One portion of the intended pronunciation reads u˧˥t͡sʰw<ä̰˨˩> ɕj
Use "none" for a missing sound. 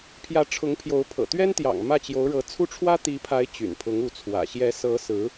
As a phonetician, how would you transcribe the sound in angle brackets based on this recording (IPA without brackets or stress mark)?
ä̰˨˩